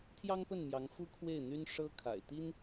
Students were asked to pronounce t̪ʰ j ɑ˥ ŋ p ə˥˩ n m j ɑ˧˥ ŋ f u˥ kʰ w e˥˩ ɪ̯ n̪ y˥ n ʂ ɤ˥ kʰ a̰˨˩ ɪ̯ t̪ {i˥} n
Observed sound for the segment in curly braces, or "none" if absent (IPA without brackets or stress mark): i˥